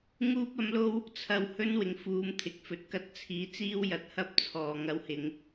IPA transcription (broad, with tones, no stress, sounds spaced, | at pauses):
ŋ uː˥ p̚ ɐ˨˥ m l o˥ w | t͡sʰ ɐ˨ w h ɵ˥ n w ɪ˨˩ ŋ f uː˨˧ m t̪ʰ ɪ˨˥ k̚ f ɵ˨ t̚ k ɐ˧ t̚ t͡sʰ iː˨˥ t͡s iː˥ w j ɐ˨ t̚ h ɐ˥ p̚ t͡sʰ ɔː˨ ŋ ɐ˧ w h ɪ˨˧ ŋ